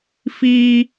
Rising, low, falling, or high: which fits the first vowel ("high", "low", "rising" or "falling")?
high